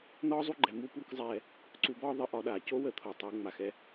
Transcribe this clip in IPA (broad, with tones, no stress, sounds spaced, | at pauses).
n̪ ɒː˥ zˤ u˥ ɡ͡ǃ ɛ˩˧ m u˥ p u˥ k zˤ ɛː˧ | ǀ u˧ b ɒː˥ ðˤ ə˧˥ ʔ ɒ˩˧ ɗ aː˩ c o˥ w ə˩˧ t̪ʰ o˩ tˤ o˩˧ ŋ͡m a˩ x ɛ˧